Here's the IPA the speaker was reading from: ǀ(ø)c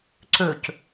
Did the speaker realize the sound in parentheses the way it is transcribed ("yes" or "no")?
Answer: yes